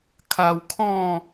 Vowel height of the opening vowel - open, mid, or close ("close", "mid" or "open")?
open